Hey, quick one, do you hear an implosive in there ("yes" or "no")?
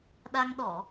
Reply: yes